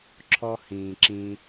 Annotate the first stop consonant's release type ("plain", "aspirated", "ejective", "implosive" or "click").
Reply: click